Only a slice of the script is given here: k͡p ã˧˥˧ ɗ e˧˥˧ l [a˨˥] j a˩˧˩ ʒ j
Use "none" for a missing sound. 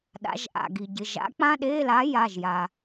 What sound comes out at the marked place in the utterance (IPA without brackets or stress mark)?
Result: a˨˥